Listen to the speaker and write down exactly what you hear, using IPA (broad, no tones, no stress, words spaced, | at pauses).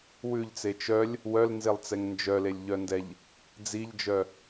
wʉʎt͡se t͡ʃœlʲ | wœlnzelˠt͡sɛŋ nd͡ʒœlelʲʎœndɛʎ | d͡ziʎd͡ʒœ